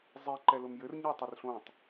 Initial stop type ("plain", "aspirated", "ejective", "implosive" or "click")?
click